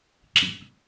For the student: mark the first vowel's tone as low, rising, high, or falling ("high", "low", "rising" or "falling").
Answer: low